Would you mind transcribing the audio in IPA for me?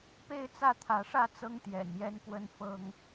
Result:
pe˥˨ɪ̯t͡sä˥˨t̪ʰä˨˦ʂä˥˨ t͡sɤ˦ŋt̪jɛ̰˨˩n jɛ˦nkwə˦n fɤ˦ŋ

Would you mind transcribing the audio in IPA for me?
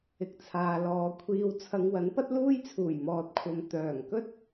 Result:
ɪ˨k̚t͡sʰaː˨lɔː˨˧ kʷʰiː˨wt͡sʰɐ˨˧ŋ wɐ˨˥npɐ˥t̚luː˥jt͡sʰuː˨˩j mɔː˨t̚kʷʰɐ˨m t̪œː˨˩ŋkɵ˥t̚

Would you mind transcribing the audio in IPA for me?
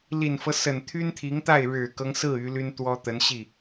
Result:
li˨˩nfɤ˦sə˨˩n t̪ʰy˥nt̪ʰi˧˥ŋt̪a˥˩ɪ̯ ɻɻ̩˨˩kɤ˦ŋsɹ̩˥˩ y˧˥ ly˥nt̪wɔ˥ t̪ə˧˥nɕi˥˩

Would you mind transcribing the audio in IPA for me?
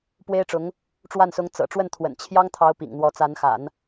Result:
pwe˥ɪ̯ʈ͡ʂʊ˧˥ŋ | ʈ͡ʂwa˥˩nsʊ˧˥ŋ t͡sɤ̰˨˩ ʈ͡ʂwə˥˩nt̪ʰwə̰˨˩n t͡ɕʰjɑ˥ŋt̪ʰɑ˧˥ʊ̯ pḭ˨˩ŋn̪wɔ˧˥ t͡sa˧˥nxa̰˨˩˦n

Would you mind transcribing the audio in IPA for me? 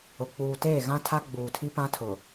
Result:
ʊ˨ k͡puː˨teː˦˨ ɣã˦tʰa˦ɡ͡buː˨tʰi˦ pã˦tʰʊ˨

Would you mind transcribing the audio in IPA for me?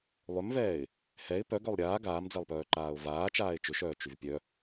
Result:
lˠʏmvɛːɪ̯ | hɛɪ̯ pœ ɡœlˠɾʲaː ɡaːmd͡zɛlˠpœːǃaːʊ̯ vaːt͡ʃaːɪ̯ t͡ʃʏʃœː t͡ʃyvpʲœ

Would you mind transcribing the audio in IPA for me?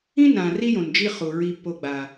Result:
ĩ˦nã˨ ri˦jõ˨n d͡ʒi˦χu˨ ɹi˦pːo˦ ɡ͡ba˦

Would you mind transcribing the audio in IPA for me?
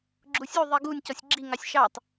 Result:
ɡ͡ǁusʲu ðˤiɡunʲ cɔsʲɡ͡ǁiŋɑsʲ ʃɑtˤ

